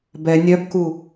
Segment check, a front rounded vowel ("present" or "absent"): present